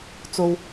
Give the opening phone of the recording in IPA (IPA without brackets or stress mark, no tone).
t͡s